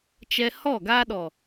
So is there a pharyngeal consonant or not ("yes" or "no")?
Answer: no